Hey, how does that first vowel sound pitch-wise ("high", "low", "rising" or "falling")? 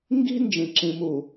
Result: high